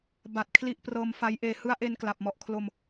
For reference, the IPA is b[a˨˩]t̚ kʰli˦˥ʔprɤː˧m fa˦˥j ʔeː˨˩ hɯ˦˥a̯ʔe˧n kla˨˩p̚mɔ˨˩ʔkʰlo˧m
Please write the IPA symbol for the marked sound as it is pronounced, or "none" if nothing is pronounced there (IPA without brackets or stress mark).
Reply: a˨˩